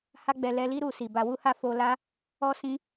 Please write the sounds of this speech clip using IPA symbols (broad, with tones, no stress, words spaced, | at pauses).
ha˦ɡ͡bɛ˧ lɛ˧li˦ ɾu˧si˨ba˧ wu˦ha˦fo˧la˦ | ɔ˦sĩ˧